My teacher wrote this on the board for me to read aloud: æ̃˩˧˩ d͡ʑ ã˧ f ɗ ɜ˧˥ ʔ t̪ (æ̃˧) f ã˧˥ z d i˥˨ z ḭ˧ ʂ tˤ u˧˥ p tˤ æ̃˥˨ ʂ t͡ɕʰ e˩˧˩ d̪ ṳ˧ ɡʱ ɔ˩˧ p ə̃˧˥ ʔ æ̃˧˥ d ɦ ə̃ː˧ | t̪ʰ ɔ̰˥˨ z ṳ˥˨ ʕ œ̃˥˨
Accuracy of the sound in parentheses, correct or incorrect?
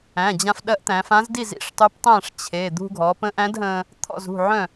incorrect